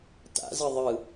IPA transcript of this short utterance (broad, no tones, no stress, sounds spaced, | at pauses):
t a̰ z ɯ ðˤ ɯ